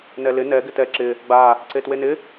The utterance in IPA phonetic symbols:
n ɛ l ɪ n ɛ ɡ ɪ t ɛ ǁ ɪ | ɡ͡b a | ǀ e t w e n ɪ

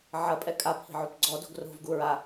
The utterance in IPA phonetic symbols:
ʕ ɐ pʼ ɛ kʼ a pʰ i̤ ʕ o p ɡ͡ǀ ɔ d o̤ ɡ r o̤ v ɡ u ɹ a

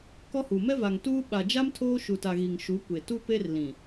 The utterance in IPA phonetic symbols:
k ɔ˦ h u˨ m ɛ˦ v a˨ ŋ t uː˦ ɓ a˨ d͡ʒ a˦ m tʰ oː˦ ʃ u˨ t a˨ ɣ i˨ ŋ ʃ u˨˦ kʷ e˨ t u˦ p e˦ r l ĩ˨

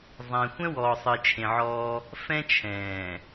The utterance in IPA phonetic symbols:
zˤ ɛ̃˨ xʷ ɛ̃˦ w ɔː˨ sˤ ɨ˨ t͡ʃʰ ẽ˨ ʕ ɔː˦ | f ɛ̃˦ t͡ʃʰ ɛ̃ː˨

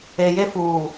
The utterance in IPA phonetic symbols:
e˨ j e˦ f uː˨

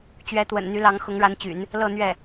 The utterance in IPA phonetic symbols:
t͡ɕ ɥ ɛ˧˥ t̪ w ə̰˨˩ n n̪ y˧˥ l ɑ˧˥ ŋ x ʊ˧˥ ŋ ɻ a˧˥ n t͡ɕ y̰˨˩˦ n | l ɤ˥˧ n̪ ɥ ɛ˥˩

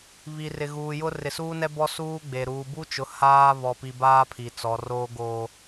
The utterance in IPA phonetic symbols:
β i˨ r ɪ˨ ɣ uː˨ j ʊ˦ r ɪ˨ s uː˦ n ɛ˦ b ɔ˦ s uː˦ ɡ͡b e˨ ɾ uː˨ b u˦ t͡ʃ ʊ˨˦ h aː˦ β ɔ˦ p i˦ b aː˦ pʰ i˨ t͡s ɔ˨ r oː˦ ɡ oː˦

